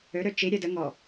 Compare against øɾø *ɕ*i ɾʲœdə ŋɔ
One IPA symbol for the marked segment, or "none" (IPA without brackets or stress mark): t͡ʃ